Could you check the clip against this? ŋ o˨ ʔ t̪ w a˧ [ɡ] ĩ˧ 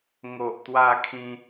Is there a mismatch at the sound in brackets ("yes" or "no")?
yes